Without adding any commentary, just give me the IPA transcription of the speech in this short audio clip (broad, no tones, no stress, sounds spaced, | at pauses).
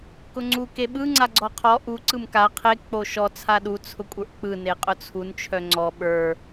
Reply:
k ʊ ŋ͡ǀ u k e ɓ ɯ ŋ͡ǀ a ɡ͡ǀ ɔ qʰ ɔ ʔ u ǀ ɯ m k a qʰ e k͡p o ʃ ɔ t͡sʰ a ɗ u t͡sʰ ʊ kʷʼ ə˞ ʔ k͡p ɯ n e qʼ ʊ t͡sʰ u n t͡ʃʰ œ ŋ͡ǀ ɔ ɓ ə˞